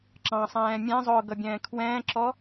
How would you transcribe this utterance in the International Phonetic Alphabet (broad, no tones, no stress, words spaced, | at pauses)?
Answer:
ǁɑ̃sˤɛ̃ː mʲɛ̃zˤʊː ɡʌbʲɛ̃ːkʰwɛ̃ːǁɔ